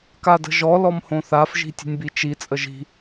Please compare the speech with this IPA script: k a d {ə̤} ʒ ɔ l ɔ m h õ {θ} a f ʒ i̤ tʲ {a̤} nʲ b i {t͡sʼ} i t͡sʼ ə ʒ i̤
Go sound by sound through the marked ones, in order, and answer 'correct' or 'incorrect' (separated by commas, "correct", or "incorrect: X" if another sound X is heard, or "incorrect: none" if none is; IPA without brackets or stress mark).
correct, correct, incorrect: ə̤, incorrect: t͡ʃ